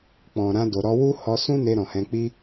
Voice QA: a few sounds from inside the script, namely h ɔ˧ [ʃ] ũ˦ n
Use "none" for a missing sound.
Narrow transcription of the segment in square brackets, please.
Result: s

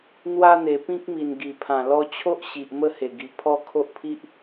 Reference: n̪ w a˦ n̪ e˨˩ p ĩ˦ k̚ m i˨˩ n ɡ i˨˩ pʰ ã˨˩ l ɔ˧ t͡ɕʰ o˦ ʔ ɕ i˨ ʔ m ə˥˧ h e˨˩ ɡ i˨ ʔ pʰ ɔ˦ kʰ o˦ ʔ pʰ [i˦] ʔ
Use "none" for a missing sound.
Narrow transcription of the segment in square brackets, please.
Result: i˦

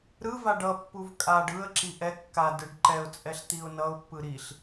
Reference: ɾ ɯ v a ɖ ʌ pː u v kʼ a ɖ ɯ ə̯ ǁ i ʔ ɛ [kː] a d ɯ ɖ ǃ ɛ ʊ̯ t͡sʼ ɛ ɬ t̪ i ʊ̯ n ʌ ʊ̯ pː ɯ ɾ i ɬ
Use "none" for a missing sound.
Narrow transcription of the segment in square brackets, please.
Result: kː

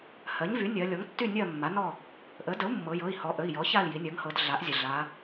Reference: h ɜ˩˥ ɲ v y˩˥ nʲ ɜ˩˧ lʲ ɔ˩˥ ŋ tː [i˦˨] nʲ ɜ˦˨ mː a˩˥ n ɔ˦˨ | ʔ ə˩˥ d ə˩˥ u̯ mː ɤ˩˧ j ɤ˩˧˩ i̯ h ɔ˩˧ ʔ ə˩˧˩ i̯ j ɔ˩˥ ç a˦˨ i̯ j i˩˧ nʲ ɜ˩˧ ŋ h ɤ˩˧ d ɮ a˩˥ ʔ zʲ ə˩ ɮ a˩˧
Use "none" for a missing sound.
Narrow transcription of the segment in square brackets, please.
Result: y˦˨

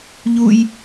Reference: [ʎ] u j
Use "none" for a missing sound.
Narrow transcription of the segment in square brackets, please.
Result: ʎ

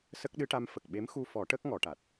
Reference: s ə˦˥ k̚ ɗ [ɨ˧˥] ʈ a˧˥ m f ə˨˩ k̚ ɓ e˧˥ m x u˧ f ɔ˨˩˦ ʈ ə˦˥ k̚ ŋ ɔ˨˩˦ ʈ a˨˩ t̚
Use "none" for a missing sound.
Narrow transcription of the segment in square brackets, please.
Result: ɨ˧˥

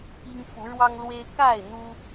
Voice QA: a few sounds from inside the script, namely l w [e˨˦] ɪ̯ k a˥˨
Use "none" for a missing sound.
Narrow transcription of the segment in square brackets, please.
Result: e˦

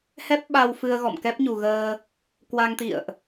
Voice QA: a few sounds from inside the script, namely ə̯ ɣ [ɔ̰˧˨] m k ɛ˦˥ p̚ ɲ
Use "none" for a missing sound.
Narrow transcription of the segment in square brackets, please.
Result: ɔ̰˧˨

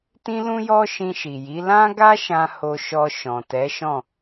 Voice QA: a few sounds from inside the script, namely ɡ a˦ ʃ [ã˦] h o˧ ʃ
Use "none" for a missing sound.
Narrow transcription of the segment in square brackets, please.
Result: ã˧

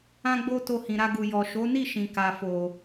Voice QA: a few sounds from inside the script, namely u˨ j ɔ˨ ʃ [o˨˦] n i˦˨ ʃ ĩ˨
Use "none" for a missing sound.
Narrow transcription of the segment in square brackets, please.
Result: o˨˦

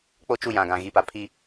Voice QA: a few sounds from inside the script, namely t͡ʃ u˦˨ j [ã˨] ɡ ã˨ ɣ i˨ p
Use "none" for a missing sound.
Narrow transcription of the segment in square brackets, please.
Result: ã˨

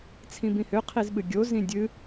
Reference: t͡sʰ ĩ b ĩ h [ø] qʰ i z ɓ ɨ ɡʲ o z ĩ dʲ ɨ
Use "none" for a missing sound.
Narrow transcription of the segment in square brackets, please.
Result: ø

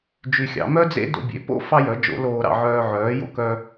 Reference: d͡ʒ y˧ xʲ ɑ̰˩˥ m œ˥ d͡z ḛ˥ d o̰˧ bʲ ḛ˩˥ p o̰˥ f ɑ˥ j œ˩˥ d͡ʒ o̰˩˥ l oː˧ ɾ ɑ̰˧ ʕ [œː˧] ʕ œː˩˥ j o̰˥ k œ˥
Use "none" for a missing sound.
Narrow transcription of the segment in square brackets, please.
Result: œː˧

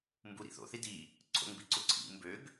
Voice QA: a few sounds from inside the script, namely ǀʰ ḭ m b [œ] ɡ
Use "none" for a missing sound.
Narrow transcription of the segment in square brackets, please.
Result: ø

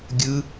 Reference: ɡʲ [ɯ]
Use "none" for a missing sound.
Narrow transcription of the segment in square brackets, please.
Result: ɯ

